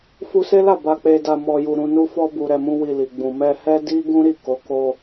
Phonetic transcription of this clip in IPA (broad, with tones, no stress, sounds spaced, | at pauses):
f u˧ s e˦ l a˦˨ b a˨ k͡p e˨ d a˨ m ɔ˨ j u˨ ɾ ũ˨ n u˧ f ɔ˧ b u˨ ɾ ɛ˧ m ũ˦ w i˧ l i˨ ɡ͡b ũ˨ m ɛ˧ h ɛ˦ d i˦ ɡ ũ˦ ɾ i˦˨ k o˨˦ k o˧